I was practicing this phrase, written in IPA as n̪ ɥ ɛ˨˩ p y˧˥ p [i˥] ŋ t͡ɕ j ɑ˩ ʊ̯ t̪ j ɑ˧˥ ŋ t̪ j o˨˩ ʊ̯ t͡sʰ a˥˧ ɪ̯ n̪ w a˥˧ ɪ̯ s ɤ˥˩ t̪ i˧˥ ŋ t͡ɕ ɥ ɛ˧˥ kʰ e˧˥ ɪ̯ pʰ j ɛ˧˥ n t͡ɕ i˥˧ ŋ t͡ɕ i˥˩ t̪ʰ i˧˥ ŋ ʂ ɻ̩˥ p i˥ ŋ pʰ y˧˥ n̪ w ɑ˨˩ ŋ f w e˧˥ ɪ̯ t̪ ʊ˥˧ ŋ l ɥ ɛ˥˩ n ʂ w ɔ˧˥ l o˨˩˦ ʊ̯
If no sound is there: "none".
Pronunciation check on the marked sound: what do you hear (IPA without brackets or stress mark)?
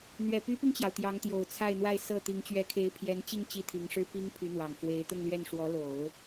i˧